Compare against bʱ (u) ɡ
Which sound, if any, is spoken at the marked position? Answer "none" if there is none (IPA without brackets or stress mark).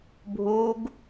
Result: u